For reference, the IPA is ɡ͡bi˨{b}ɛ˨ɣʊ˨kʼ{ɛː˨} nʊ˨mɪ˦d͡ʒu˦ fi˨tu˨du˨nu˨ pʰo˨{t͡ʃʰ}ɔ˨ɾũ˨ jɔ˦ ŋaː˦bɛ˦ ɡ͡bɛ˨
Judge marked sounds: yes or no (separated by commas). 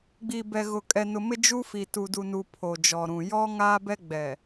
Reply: yes, no, no